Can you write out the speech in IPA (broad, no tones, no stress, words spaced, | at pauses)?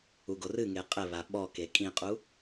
uɡorɨŋe qʼɘβa ɓɔke kʼĩqʼu